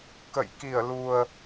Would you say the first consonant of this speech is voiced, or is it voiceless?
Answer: voiceless